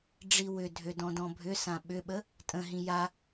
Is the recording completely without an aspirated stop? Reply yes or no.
yes